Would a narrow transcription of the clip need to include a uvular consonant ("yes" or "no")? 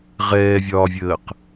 yes